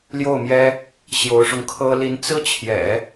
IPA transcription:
l j o˥˩ ʊ̯ m j ɛ˥ | ɕ j o˧˥ ʊ̯ ʂ ʊ˧ ŋ kʰ ɤ˥ l i˧˥ n t͡s ɹ̩˥ t͡ɕʰ j ɛ̰˨˩˦

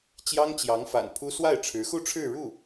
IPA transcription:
t͡ɕ j ɑ˥ ŋ t͡ɕ j ɑ˧˥ ŋ f a̰˨˩ n pʰ u˥ s w a˥˩ ɪ̯ ʈ͡ʂʰ ɻ̩˧˥ x u˥˧ ʈ͡ʂʰ ɻ̩˥˧ ɻ u˥˩

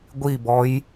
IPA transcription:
ɡʷ i b ɔ j

